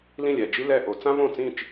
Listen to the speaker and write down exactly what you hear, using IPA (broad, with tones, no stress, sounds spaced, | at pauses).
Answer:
l ĩ˥˩ lʲ ɛ˥˩ d͡ʒ i˥ l ɛ˥˩ ʔ o˧˩˧ t͡s ã˥ v õ˥˩ t͡s ĩ˥˩ t͡ʃ